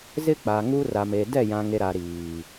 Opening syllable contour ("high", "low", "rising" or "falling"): high